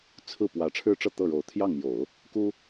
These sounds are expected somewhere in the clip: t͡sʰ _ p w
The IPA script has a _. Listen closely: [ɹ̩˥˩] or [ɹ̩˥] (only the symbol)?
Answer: ɹ̩˥˩